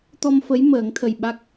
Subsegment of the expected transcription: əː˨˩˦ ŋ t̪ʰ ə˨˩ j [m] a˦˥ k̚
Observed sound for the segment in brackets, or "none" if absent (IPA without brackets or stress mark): ɓ